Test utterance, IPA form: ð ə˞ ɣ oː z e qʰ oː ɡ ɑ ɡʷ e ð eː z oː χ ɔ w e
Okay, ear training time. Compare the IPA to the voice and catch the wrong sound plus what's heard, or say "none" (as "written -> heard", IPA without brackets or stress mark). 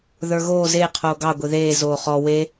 none